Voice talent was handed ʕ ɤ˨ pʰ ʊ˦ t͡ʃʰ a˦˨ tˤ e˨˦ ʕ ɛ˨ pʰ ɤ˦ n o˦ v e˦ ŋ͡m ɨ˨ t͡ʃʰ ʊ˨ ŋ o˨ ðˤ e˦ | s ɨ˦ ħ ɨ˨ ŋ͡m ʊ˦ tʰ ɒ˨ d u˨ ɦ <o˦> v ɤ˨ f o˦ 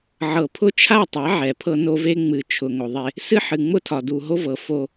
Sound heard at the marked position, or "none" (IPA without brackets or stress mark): o˦